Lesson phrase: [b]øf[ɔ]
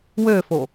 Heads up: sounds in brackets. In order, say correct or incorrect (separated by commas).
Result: incorrect, incorrect